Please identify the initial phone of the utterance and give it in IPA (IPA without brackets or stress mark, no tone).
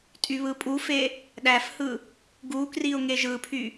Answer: tʼ